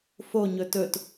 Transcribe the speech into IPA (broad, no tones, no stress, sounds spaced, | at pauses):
f o ɲ ɵ t ɵ t